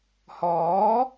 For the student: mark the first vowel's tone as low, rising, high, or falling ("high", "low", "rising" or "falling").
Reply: rising